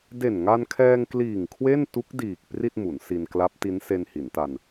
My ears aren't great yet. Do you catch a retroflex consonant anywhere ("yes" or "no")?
no